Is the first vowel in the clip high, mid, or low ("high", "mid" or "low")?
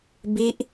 high